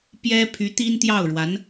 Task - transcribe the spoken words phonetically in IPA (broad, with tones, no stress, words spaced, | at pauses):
pjɛ˥ pʰy˧˥ t̪i˥nt̪jɑ˥˩ʊ̯ɻwa˧˥n